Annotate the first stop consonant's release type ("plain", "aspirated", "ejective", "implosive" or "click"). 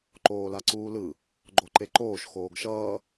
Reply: click